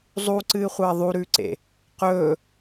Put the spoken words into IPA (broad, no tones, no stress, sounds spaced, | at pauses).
zˤ u ǀ ɨː χʷ ɐː ðˤ u ɾ ʉː ǀ ḛ | q ɵː